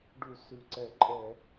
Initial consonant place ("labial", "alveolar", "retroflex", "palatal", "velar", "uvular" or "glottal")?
retroflex